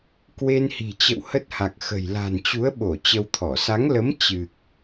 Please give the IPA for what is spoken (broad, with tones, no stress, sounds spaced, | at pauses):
k w e˧ n h i̤˨˩ t͡ɕ ə̰˧˨ w h ə˦˥ t̚ h a˨˩ k̚ x ə̤˨˩ j l a̤˨˩ n t͡ɕ u˨˦ ə̯ ɓ o˧˩ t͡ɕ ə˧ w t̪ʰ ɔ˧˩ s a˨˦ ŋ l ə˨˦ m t͡ɕ ɨ˨˩ k̚